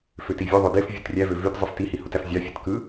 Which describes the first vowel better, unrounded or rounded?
rounded